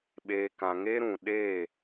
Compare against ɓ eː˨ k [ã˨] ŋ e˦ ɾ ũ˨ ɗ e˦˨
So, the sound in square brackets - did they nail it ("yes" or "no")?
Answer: yes